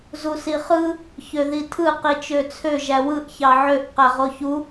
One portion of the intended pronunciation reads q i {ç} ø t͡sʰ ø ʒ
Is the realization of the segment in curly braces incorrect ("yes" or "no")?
yes